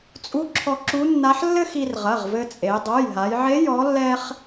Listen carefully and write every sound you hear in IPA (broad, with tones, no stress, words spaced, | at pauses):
t͡sʼu˧˥ǁʰɔ˧ ǁu˧˥nːa˧˥ħ lːɘ˥xi˧r ʁɐ˩˧˩ʁvɘ˧t͡sʼe˩˧ dˤo˩˧˩jɦa˩˧jʕe˧˥ jɔ˧˥lːɛ˥χ